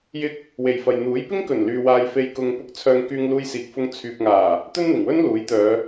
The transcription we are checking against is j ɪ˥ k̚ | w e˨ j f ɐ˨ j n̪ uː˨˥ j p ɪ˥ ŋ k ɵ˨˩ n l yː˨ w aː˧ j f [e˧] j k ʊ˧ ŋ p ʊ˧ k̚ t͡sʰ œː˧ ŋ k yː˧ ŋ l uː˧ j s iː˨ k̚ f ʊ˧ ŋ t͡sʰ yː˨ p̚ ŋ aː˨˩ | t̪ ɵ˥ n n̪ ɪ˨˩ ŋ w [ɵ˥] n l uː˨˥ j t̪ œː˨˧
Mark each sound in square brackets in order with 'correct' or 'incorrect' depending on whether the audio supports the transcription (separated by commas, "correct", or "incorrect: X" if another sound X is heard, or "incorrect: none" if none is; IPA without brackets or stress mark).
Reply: correct, correct